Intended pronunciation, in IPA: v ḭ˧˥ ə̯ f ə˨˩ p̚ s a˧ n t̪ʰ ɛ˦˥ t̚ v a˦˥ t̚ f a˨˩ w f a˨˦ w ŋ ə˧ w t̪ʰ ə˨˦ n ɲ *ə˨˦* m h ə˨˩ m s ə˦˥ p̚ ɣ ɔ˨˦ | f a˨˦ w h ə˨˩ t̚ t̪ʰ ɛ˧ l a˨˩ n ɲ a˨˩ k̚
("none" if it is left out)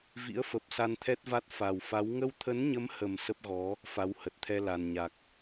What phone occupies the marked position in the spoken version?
ə˨˦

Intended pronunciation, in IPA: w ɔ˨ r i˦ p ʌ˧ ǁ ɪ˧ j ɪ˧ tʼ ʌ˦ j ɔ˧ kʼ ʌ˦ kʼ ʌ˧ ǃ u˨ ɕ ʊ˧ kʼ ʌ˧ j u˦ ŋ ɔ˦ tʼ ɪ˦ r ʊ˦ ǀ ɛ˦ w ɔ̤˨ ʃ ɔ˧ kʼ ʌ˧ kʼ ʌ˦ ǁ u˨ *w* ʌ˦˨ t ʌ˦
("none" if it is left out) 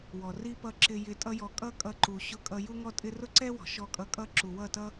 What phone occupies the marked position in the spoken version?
w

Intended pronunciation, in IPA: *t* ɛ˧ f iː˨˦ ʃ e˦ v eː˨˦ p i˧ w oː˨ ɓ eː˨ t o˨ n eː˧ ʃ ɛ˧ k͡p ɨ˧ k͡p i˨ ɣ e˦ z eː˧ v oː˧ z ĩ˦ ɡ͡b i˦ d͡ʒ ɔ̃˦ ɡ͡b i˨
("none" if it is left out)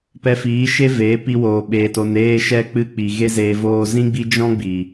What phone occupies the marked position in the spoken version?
p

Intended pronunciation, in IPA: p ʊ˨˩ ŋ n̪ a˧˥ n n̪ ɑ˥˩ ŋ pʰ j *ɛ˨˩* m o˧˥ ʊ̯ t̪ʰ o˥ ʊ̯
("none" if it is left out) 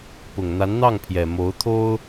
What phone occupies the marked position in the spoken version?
ɛ˨˩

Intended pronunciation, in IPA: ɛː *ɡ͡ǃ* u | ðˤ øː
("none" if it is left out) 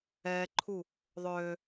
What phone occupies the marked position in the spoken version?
ǃʰ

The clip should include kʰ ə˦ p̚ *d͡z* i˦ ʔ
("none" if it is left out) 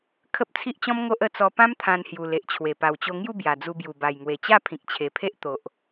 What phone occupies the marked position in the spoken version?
t͡sʰ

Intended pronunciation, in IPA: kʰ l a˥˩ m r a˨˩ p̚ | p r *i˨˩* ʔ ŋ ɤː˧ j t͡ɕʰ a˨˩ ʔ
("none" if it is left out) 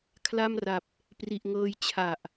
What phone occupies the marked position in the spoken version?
i˨˩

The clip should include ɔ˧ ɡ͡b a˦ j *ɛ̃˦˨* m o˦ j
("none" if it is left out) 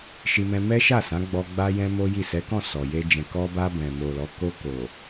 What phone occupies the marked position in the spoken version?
ɛ̃˦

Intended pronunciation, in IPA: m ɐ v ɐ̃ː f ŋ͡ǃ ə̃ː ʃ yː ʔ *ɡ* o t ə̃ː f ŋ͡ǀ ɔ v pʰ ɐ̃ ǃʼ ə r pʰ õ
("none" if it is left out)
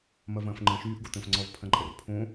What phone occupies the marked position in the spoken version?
ɡ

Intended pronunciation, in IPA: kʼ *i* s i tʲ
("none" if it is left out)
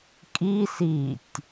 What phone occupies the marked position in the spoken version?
i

